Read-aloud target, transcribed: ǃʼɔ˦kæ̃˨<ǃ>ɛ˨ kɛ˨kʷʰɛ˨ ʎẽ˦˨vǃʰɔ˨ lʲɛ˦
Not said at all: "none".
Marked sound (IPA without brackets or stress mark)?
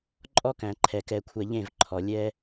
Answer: ǃʰ